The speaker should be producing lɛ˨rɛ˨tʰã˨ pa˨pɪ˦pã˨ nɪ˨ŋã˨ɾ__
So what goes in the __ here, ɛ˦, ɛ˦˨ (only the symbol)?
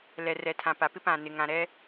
ɛ˦